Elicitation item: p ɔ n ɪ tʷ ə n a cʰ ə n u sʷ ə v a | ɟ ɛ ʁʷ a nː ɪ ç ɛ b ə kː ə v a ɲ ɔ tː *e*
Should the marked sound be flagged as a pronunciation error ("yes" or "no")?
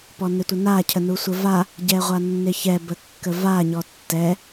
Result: yes